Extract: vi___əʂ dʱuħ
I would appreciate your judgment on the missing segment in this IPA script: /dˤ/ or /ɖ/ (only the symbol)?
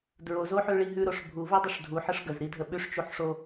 dˤ